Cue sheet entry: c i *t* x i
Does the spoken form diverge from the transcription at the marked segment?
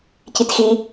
no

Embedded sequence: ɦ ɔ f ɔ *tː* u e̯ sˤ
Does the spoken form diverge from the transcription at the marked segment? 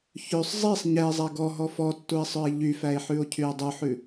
no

